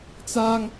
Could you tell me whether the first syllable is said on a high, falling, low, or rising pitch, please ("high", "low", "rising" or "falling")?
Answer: high